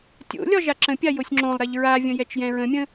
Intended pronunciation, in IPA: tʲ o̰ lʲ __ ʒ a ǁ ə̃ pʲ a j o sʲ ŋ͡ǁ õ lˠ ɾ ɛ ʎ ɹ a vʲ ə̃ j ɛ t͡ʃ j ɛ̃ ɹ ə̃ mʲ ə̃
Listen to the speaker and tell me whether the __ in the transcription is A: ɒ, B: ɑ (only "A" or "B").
A